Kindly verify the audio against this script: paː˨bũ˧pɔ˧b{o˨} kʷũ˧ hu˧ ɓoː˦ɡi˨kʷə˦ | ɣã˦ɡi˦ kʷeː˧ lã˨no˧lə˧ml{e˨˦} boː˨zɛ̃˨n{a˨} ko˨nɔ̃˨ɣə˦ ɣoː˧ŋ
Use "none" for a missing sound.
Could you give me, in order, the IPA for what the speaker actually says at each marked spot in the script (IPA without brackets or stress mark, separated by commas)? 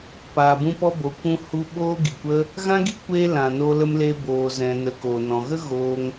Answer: o˨, e˧, ə˨